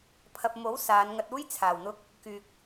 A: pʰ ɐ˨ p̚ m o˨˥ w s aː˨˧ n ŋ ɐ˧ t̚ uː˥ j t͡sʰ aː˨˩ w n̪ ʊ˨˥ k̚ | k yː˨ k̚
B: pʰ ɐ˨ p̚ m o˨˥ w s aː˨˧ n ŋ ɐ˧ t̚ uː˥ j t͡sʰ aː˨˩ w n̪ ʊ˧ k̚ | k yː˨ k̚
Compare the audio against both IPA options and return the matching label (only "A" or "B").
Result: B